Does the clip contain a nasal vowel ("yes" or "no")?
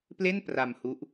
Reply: no